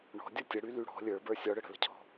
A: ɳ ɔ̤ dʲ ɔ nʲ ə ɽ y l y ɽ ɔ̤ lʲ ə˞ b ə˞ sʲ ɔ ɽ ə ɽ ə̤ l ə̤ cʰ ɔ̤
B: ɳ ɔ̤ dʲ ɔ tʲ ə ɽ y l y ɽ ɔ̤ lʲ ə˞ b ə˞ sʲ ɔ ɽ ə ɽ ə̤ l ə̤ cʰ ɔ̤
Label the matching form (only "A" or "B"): B